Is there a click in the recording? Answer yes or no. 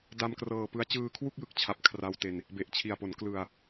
no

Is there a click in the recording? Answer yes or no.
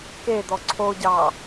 yes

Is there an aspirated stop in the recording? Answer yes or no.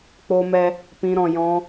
no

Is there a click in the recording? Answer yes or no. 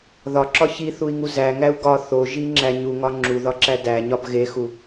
yes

